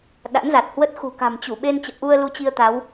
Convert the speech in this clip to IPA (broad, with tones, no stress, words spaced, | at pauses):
ɗa̰˧˥nza˨˩t̚hwə˦˥t̚ xṳ˨˩ka̤˨˩mt͡ɕu˧˩ɓe˧n t͡ɕə̰ː˧˨ʔu˧ə̯ lu˧t͡ɕi˧ə̯ t̪a˨˦w